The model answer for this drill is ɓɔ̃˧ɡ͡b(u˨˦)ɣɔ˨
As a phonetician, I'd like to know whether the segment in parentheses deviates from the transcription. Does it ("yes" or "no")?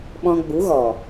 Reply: no